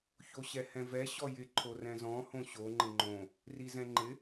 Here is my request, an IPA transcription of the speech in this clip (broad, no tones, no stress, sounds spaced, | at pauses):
ç o ɕ ɛ h ɛ̃ v ɛ ɕ ɔ j ɪ ǃʰ o r ɛ̃ z ɔ̃ h õ ɕ o ŋ͡ǃ ɪ ŋ͡ǃ õ | r i z ɛ̃ ŋ͡ǃ ɪ